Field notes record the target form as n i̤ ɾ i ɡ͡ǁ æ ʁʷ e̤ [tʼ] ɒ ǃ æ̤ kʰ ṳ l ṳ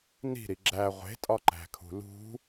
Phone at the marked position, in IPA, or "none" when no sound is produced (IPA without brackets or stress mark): tʼ